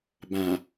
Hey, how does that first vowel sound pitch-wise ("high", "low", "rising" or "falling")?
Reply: low